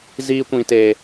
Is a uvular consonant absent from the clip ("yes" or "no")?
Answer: yes